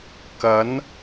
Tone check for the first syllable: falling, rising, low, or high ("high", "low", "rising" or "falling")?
rising